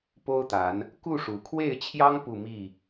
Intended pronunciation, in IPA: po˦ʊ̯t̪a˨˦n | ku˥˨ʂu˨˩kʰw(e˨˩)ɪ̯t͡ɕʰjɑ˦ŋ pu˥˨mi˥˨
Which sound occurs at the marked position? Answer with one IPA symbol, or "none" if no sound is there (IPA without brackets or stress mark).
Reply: e˥˨